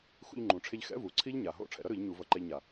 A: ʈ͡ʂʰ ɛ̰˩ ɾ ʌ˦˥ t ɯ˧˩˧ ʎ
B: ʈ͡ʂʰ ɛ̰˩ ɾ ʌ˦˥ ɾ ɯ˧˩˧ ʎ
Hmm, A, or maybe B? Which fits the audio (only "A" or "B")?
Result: B